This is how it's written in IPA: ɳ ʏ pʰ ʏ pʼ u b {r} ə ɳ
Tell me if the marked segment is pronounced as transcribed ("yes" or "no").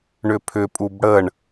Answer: no